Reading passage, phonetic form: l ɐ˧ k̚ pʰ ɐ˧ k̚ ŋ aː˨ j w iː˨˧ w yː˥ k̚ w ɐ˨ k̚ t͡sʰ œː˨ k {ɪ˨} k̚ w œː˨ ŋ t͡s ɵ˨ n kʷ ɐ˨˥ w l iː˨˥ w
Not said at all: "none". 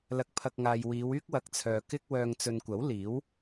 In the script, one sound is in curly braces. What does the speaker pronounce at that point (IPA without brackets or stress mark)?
ɪ˥